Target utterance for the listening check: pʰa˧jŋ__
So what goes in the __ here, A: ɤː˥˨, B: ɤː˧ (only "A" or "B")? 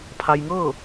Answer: A